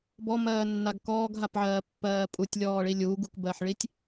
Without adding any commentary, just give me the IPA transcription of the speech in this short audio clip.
b ɔ m ɜː nː a ɡ k ɔː ɡ ɦ a p ʕ ɜː pː ɜː pʼ u tʲ lʲ ɔː ɭ i lʲ u ɡ u k b ɜ ħ ɭ i tʲ

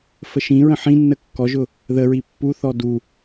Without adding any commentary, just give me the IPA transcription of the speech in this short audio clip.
f ə ʃ ĩ ɹ ə̃ ħ ĩ nː ə kː ɔ ʒ ʊ | ð ə ɹ i pː u θ ɔ d u

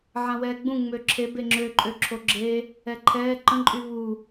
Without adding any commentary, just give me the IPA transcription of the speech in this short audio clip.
ʕ ã w ɛː ɡ͡b ũ ŋ͡m ø ǁʰ e b e ŋ͡ǁ ø ǃʼ ø ǁʰ o ɡ͡ǁ e | ɛ ǃʰ ɛː ǃ ə̃ ǃʼ y β u

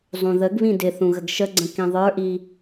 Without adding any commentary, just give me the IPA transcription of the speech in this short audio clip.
zˤ ũ ð ə ɡ β ĩ d ɪ θ ũ ɣ ə ɡ ʃ ə ɡ͡ǀ ə̃ k ĩ ðˤ ə˞ ʔ i

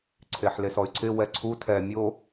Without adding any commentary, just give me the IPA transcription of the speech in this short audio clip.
ǀʰ e ħ l e s ɔ y̯ ǀʰ ɪ w ɛ ǀʰ u tʰ ɛ mʲ o

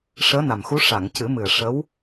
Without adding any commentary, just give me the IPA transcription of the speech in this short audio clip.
ʂ əː˧˥ n a˨˩ m x u˧˥ ʂ a˨˩˨ ŋ c ɨ˨˩˦ m ɨ˨˩ ə̯ ʂ ə˧˥ w

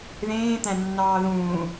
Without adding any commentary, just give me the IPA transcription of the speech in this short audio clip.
ð ẽː t̪ æ̃ nː ɑː ð ũː

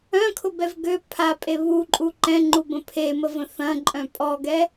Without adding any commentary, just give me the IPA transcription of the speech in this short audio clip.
œ̃ kʰ ʊ b ɛ v ɡ ø pʰ a pʼ e β u ǃʼ u ǃ ɛ̃ ŋ͡ǃ u b ə̃ pʰ e m ə v ə̃ θ ɐ̃ ǃʼ œ̃ pʼ ɔ ɡ ɛ

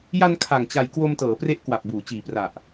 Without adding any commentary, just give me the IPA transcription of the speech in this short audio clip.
j a˧ n kʰ a˨˩ ŋ t͡ɕ a˨˩ j k w o˧ m t ɤː˩˦ p r e˦˥ ʔ k w a˨˩ p̚ b uː˩˦ t͡ɕ iː˨˩ p r a˨˩ ʔ

